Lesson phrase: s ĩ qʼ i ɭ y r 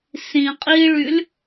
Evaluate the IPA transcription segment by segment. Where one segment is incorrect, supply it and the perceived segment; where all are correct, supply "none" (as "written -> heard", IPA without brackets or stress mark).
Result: r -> l